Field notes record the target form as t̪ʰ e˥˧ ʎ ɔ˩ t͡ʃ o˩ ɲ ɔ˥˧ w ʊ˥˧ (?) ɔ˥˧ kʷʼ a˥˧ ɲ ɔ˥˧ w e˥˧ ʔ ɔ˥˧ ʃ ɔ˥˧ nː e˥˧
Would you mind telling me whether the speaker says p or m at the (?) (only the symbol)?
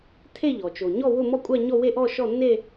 m